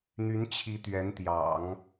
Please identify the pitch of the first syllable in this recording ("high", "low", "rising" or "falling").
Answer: rising